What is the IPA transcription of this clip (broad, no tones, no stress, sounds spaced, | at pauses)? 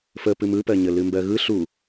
f ə p ɨ m ɯ p ɜ ɲ ə l ɨ m b ɜ ɣ ɯ ɬ u